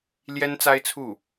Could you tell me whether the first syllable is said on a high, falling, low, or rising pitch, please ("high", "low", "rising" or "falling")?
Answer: high